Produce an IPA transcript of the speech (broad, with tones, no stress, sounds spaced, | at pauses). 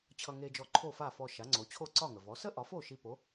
t͡ɕʰ ʌ˧ ŋ e˧ d͡ʒ ɔ˧ ǃʰ o˥˩ f a˥˩ f ɔ˧ ʃ a˩˥ ŋ͡ǀ o˩˥ t͡ɕʰ o˥˩ ǀ ɒ˥˩ ŋ ə˩ v ɔ˩˥ s ə˥ ʔ ɒ˩˥ f o˥˩ ʃ i˧ p o˩˥